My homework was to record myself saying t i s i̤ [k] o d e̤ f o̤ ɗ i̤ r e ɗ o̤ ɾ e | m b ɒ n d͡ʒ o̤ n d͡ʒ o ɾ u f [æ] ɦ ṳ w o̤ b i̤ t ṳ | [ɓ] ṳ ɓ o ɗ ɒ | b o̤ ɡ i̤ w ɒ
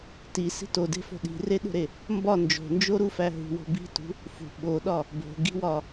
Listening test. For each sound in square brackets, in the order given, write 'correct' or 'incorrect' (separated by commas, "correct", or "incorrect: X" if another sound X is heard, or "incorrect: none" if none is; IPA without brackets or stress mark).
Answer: incorrect: t, correct, incorrect: f